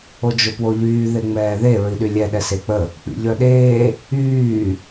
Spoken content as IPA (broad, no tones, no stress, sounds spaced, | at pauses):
o d͡ʒ o p w o ʎ yː ð e ŋ͡m ɛː ð e ɹ i ɗ y lʲ ɛ ɗ ɛ s e k͡p ə | k͡p ḭ ʎ œ ɗ eː | yː